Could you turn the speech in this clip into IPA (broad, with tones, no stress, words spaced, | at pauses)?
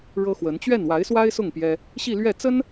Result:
ɻɤ˥xwə˧˥n t͡ɕɥɛ˥˩nwa˧˥ɪ̯swa˥ɪ̯sʊ˥˩ŋ pjɛ˥ | ɕi˥˧lɥɛ˥˩t͡sə˥n